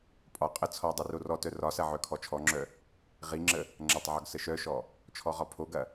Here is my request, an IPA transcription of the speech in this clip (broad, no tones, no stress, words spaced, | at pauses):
pʼɒ qʼə t͡sʰɔ dˤirorɔtœ rɒsɐ ʕœkʰɔt͡ʃʰɔŋ͡ǁœ | ʁiŋ͡ǁə | ŋ͡ǁɐtˤʕɒɡ səʃœʃɔ | t͡ʃʰɔʁɒpʰoɡɐ